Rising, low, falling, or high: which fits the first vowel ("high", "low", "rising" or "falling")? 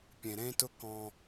low